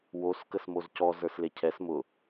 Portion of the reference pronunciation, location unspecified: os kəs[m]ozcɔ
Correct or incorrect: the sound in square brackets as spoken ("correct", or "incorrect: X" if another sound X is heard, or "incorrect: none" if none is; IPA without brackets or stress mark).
correct